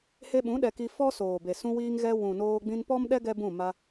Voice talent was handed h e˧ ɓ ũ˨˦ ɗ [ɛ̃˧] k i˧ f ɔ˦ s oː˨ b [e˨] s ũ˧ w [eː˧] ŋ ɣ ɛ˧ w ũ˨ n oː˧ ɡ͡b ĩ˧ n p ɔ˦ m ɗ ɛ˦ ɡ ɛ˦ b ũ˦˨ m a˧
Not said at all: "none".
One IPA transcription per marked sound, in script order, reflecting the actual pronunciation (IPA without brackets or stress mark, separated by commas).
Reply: ɛ˧, e˨, iː˧